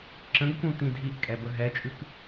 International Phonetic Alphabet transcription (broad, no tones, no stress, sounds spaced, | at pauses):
ǁ ə̃ ɡ k ũ t ĩ dʱ i ʔ kʼ ɛ b ə ɦ ɛ t͡ʃʼ ʉ k